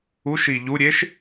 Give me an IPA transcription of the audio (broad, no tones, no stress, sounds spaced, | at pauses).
u ʃ i ʎ u ɾʲ e ʃ